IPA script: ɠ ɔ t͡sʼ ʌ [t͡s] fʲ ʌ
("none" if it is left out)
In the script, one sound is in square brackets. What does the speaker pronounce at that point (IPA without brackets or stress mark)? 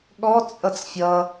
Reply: t͡s